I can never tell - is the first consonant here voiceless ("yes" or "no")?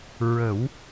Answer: no